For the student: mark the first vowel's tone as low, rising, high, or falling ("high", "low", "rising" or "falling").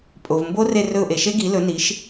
low